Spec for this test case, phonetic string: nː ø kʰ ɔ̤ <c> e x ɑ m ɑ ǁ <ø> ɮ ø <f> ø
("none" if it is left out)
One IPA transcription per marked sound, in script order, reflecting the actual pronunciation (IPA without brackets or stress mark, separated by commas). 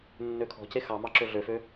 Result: c, ø, f